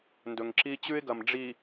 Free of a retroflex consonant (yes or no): no